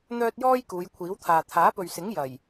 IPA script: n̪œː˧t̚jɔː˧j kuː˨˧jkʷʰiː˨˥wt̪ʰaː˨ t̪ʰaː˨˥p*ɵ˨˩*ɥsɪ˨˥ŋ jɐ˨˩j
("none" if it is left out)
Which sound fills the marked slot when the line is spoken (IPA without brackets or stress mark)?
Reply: ɵ˨